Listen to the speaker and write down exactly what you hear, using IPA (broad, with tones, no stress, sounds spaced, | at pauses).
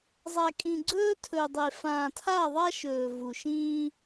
zˤ a˨ kʼ ĩ˨ ɡ͡ǀ ɵː˦ tʰ ɵ˨ dˤ e˨ f ãː˨ tʰ a˦˨ ðˤ a˦ ʃ ɵː˨ v u˨ ʃ ĩː˦